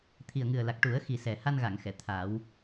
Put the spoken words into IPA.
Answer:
t̪ʰ i˨˩ ə̯ ŋ ɨ˨˩ ə̯ l a˨˩ k̚ ʈ u˨˩˦ ə̯ x i˨˩ s ɛ˨˩ h a˧ n ɣ a˨˩˨ ŋ x ɛ˨˩˨ t̪ʰ aː˨˩˦ w

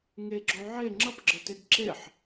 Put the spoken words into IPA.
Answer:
ŋ e ɡ͡ǁ o ʕ e ŋ͡ǁ ʌ p ɡ͡ǁ ə t e ɡ ǁ e ħ

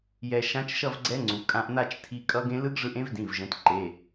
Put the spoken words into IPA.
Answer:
j ɛ˧ ʃ ã˦˥ t͡ʃ ʃ ʌ˥˧ v ɡ͡ǀ ɛ˦˥ ŋ͡ǀ u˩˧ kʼ ã˧ ʔ n̪ a˥˧ t͡ʃ tʰ i˧ kʼ ʌ˦˥ ɡ ẽ˦˥ l ɯ˦˥ ɡ ʐ ɯ˧ ʔ ẽ˦˥ v d ĩ˩˧˩ v ʒ ɛ̃˩˧ t ǃ e˩˧˩

